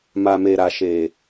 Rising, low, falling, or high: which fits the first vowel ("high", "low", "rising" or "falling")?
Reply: low